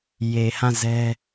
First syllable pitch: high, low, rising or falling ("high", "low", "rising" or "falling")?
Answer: low